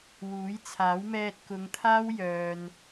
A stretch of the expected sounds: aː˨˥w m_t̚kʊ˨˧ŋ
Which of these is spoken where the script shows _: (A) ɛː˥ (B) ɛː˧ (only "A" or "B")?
B